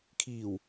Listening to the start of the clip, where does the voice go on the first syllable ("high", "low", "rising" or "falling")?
low